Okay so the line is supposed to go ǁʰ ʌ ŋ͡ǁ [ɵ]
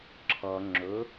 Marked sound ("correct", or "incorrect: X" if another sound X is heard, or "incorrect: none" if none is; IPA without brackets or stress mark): correct